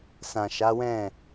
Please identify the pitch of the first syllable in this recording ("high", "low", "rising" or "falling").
low